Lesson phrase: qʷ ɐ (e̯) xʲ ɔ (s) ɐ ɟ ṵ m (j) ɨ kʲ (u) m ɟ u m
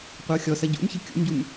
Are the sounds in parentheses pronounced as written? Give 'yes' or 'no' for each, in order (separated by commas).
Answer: no, yes, no, no